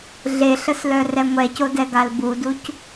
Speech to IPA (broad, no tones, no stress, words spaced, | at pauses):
ɮeɬəslœ rɛŋʷɛcodɛ ɡalbuduc